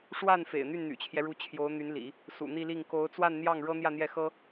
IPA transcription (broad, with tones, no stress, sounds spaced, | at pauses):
ʂ w a˥˩ n f ḛ˨˩ ɪ̯ n̪ y˥˩ n n̪ y̰˨˩ t͡ɕʰ j ɛ˦ ɻ u˧˥ t͡ɕʰ j o˧˥ ʊ̯ n̪ y˧˥ n l ḭ˨˩˦ | s ṵ˨˩ n̪ i˥˧ l i˥˩ ŋ k o˧˥ ʊ̯ t͡s w a˥˧ n n̪ j ɑ˥˩ ŋ ɻ ɤ˥ n̪ j ä˥˧ n̪ j ɛ˥˩ x ɤ˥